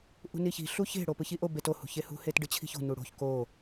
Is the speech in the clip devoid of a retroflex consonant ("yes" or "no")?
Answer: no